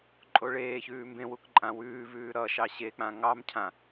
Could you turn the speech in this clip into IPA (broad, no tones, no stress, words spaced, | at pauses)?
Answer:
ǃʼoɭeːçʉː mbẽwuk ǃʼãwʉːvʉː ɾʌ ʃɑɕek͡pã ŋɑmcʰã